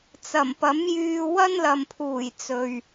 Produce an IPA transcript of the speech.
t͡s ɐ˨˩ m p ɐ˨˥ m j yː˧ w ɐ˥ n l ɐ˨ m pʰ uː˨˩ j t͡s ɵ˨ ɥ

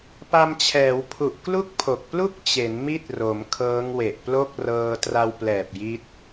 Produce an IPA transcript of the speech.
p a˧ m t͡ɕʰ ɛː˩˦ w pʰ u˨˩ ʔ k l u˥˩ k̚ pʰ o˨˩ k̚ p l u˥˩ k̚ t͡ɕ e˩˦ n m i˦˥ t̚ r o˩˦ m kʰ ɤː˦˥ ŋ w e˨˩ ʔ p l o˥˩ k̚ r ɤː˧ t r a˧ w p l ɛː˨˩ p̚ j i˦˥ t̚

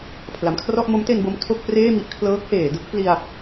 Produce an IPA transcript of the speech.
pʰ l a˩˦ m kʰ r ɔ˥˩ ʔ m o˦˥ m t e˧ n b o˧ m tʰ o˥˩ k̚ p r eː˥˩ m i˥˩ ʔ kʰ l ɤː˦˥ k̚ h eː˩˦ d ɯ˦˥ k̚ p l i˧ a̯

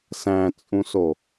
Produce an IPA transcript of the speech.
s æ̃ t͡sʼ ũ s o

